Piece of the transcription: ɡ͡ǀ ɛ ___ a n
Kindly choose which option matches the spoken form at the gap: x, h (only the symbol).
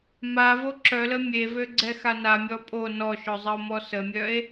x